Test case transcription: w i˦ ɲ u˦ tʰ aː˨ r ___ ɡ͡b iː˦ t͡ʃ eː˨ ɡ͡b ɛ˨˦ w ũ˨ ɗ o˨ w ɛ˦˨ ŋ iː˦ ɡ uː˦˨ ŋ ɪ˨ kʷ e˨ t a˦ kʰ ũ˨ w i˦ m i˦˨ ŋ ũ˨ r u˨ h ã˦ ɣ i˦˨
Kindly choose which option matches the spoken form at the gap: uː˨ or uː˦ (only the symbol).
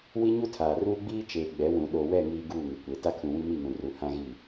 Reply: uː˦